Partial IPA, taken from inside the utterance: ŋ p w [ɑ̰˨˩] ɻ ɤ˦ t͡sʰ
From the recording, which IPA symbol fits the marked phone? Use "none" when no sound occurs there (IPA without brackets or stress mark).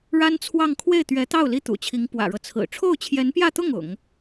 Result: ä̰˨˩